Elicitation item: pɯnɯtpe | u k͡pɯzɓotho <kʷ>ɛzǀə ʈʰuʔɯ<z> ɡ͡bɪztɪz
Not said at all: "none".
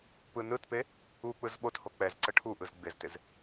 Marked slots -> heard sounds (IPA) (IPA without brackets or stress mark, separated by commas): k͡p, z